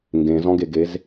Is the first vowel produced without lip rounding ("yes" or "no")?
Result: yes